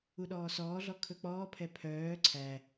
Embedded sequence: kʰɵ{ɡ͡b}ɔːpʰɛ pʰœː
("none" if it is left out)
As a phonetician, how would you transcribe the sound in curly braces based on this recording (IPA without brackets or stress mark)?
k͡p